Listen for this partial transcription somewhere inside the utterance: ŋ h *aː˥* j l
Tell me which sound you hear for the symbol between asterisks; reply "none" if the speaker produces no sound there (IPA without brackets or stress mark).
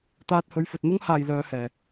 aː˨